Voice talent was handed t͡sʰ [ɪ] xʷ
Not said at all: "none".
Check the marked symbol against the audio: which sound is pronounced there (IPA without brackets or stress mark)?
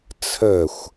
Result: ə